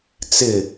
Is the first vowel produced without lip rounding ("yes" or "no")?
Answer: yes